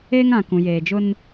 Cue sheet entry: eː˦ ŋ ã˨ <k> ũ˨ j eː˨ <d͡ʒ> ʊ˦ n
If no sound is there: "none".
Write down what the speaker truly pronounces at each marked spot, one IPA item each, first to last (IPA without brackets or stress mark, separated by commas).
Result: k, d͡ʒ